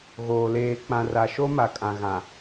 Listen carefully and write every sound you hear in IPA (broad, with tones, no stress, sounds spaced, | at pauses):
ɣ oː˨ l eː˨ k͡p ã˨ r a˨ ʃ o˦ m a˨ kʼ ã˨ ɣ ã˨